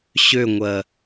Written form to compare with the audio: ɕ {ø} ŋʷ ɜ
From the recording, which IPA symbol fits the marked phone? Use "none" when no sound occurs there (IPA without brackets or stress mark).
ø